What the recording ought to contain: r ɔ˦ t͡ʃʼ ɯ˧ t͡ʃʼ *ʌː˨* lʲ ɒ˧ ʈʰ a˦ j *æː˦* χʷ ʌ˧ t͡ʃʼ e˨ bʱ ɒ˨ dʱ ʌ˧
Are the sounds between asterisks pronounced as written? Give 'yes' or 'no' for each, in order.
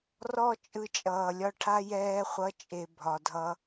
yes, no

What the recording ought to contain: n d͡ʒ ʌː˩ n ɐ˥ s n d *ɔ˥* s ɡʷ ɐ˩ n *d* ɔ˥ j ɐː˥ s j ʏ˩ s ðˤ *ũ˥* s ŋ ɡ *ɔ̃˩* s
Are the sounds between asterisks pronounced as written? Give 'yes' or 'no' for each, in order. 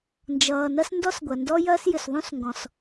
yes, yes, yes, yes

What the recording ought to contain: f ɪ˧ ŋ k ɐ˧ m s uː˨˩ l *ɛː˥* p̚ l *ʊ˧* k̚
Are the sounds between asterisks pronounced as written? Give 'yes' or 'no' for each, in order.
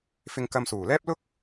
yes, no

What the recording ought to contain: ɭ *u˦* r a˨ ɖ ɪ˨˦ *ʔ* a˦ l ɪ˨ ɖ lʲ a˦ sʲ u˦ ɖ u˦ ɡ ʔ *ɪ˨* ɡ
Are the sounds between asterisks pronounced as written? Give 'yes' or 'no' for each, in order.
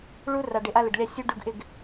yes, yes, no

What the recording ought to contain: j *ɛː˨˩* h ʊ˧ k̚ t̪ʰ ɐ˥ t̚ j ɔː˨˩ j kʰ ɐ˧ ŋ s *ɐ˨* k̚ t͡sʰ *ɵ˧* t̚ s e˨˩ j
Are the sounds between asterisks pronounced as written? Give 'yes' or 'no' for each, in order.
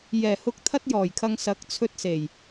yes, no, yes

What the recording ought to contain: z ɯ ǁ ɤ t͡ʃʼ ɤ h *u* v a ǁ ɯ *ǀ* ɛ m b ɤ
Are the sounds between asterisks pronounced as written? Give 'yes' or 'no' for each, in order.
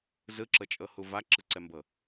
yes, yes

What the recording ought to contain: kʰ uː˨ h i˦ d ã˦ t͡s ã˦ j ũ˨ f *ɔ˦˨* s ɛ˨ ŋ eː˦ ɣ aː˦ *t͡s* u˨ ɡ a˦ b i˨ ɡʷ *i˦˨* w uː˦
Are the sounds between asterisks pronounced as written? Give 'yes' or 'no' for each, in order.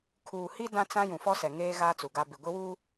no, yes, no

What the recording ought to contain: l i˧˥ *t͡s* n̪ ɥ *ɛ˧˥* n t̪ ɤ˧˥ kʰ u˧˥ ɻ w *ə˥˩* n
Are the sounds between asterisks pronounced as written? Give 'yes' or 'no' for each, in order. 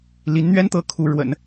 no, no, no

